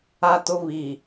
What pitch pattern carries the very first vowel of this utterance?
high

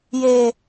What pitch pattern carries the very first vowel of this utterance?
high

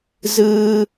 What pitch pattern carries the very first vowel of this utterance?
high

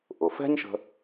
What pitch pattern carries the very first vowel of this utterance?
low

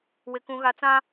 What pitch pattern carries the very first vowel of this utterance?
high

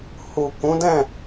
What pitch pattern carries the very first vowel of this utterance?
low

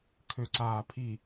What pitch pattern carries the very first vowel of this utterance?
low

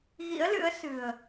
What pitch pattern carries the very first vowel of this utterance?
rising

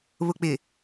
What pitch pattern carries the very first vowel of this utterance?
low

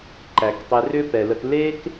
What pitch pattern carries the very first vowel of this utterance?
low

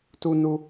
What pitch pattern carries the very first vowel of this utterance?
high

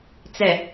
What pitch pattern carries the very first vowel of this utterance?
low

